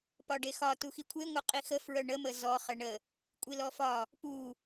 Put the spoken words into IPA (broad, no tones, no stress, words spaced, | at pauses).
pɒɖexɒ tuxikʷʰe ŋʷeqʼixə fɹœɳə məzɔ χəɳə | kʷʼilɔfɒ | pu